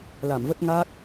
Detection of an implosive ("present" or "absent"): absent